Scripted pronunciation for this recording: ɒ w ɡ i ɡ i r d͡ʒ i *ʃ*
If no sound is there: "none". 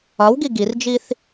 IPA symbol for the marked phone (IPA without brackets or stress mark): θ